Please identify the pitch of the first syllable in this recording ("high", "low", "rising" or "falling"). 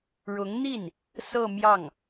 rising